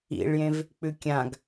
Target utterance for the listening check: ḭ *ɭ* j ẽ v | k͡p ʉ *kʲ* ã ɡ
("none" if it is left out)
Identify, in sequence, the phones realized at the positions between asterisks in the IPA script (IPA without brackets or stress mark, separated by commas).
ɭ, kʲ